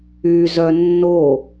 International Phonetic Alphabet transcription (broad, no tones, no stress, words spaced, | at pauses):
yzœ nːo